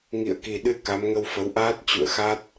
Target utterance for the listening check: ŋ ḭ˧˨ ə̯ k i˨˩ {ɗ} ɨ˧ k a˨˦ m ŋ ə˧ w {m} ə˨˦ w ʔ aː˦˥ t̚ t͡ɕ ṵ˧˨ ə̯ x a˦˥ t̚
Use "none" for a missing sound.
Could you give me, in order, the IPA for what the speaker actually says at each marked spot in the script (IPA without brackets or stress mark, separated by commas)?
ɗ, f